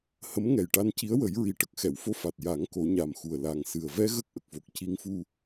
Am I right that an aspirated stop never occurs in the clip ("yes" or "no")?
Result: yes